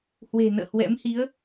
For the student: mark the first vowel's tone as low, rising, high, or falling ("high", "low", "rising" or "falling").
low